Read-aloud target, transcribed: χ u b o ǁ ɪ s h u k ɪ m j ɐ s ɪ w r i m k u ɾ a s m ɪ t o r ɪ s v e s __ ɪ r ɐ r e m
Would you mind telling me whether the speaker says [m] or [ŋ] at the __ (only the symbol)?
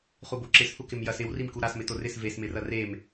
m